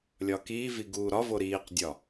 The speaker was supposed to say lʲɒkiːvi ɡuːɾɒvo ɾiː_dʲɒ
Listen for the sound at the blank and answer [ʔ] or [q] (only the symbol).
q